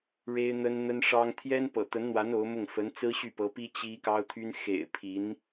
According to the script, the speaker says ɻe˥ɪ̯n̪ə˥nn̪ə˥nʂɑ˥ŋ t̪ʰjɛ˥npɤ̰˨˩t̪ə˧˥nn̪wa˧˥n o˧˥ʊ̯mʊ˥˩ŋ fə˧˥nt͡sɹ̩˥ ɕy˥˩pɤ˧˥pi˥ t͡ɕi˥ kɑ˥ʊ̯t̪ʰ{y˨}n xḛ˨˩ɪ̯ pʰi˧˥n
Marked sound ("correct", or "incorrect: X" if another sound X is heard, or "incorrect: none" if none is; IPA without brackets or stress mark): incorrect: y˥